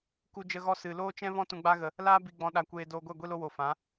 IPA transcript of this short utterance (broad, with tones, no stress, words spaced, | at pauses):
ku˦d͡ʒə˦ɣɔ˦ sɨ˨ loː˦t͡ʃɛ̃˦vɔ̃˦ tũ˧ɡ͡ba˦ɣə˧ | laː˦bi˧ɡ͡bɔ̃˧ ɗa˧kʷeː˧ doː˧ɡʷɛ˦˨ ɡʷi˧lo˧wo˨ fã˨˦